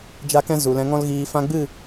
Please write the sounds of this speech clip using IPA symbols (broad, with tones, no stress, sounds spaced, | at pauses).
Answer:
d͡ʒ a˦ k ɛ̃˦ z u˨ l ɛ̃˧ ŋ ɔ̃˦ l ɣ iː˧ f ã˧ ɡ͡b ɨ˦˨